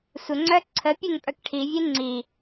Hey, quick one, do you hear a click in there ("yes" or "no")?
yes